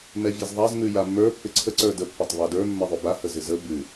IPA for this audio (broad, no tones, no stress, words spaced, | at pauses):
mɛvʲɛzðˤaz mʉjamːə˞ pːɪǀʰə ǀə˞də pːatˤβadə˞ mːɛðˤʉba həzɪzə bʉ